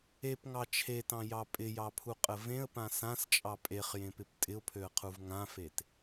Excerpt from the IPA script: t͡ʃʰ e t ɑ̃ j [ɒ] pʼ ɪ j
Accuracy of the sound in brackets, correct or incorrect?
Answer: incorrect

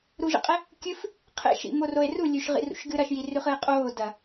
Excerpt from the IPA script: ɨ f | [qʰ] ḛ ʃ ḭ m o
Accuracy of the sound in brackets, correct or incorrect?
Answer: correct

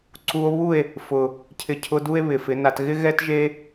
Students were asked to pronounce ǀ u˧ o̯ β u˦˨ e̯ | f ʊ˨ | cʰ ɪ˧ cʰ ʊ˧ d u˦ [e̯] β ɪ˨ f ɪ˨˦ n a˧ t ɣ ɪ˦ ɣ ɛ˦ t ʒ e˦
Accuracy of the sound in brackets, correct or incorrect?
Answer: correct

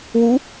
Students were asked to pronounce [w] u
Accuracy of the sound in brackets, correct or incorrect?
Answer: correct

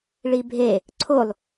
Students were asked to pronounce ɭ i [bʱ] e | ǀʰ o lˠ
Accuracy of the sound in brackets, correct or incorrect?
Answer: correct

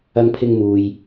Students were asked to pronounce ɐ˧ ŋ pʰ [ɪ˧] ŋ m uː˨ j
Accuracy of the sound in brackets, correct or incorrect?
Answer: correct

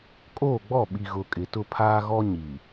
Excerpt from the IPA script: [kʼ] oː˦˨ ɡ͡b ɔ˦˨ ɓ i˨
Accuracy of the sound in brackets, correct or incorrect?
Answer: correct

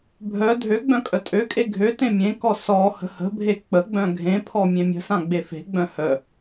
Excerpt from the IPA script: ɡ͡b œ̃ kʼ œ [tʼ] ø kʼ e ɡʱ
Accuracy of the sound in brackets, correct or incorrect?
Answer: correct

